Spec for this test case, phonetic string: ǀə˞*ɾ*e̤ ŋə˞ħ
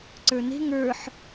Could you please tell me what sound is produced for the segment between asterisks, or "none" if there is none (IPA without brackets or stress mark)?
n